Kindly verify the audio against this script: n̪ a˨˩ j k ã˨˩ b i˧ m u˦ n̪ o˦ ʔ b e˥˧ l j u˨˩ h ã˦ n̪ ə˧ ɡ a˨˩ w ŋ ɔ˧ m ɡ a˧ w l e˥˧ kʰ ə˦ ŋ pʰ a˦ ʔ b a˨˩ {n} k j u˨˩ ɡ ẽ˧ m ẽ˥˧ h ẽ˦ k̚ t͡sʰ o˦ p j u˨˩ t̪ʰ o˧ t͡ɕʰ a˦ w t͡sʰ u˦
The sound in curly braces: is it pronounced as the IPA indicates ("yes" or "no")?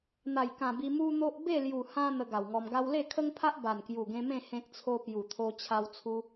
yes